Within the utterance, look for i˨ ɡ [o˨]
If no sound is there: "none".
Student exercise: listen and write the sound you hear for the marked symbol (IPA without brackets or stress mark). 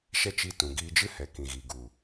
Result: u˨